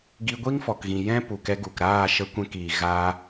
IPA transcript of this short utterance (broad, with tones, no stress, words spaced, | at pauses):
ɡi˧ɡʷi˦ŋfɔ˨kɣĩ˨ jɛ̃˦ pu˨kɛ˧ɡu˨kɾaː˦˨ ʃə˧kʷɛ̃˧kiː˨ ɣaː˧